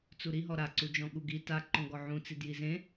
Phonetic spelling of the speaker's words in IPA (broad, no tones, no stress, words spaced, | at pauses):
t͡suɾiɦɔ ɾaǀud͡ʒɔ̃ ɠuɡi taǃɔ̃ ɡɔʕũt͡si djizẽ